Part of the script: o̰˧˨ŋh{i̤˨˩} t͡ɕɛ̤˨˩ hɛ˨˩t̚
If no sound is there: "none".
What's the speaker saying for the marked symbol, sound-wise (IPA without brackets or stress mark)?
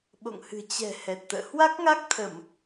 ɨ̤˨˩